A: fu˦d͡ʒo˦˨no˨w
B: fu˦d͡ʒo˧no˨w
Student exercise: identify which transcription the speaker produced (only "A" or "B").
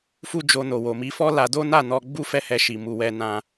B